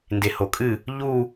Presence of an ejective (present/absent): present